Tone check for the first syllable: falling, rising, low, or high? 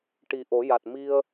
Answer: low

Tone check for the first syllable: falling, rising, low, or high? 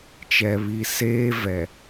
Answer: low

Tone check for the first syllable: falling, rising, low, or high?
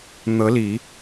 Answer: rising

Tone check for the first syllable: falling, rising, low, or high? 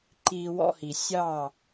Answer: low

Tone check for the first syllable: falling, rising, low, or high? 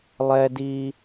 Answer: high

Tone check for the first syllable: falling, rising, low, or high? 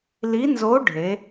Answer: rising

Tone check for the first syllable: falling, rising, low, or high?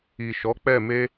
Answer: low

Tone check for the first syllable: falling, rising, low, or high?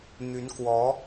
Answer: rising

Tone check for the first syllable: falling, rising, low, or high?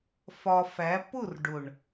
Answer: low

